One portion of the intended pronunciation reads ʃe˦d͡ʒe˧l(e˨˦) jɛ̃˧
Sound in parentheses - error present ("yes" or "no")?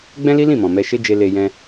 yes